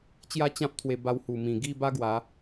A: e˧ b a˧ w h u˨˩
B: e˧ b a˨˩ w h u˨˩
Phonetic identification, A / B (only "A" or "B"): A